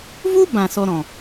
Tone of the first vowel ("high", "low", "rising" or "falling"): high